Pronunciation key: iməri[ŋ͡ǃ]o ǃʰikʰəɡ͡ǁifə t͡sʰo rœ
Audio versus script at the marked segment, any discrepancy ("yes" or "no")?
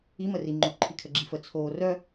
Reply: no